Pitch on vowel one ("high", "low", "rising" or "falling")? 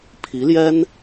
rising